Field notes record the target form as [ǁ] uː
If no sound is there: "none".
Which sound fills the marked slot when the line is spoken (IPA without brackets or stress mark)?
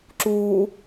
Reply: ǁ